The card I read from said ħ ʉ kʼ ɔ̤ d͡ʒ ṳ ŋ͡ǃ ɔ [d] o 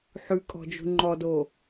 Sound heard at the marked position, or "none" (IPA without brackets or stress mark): d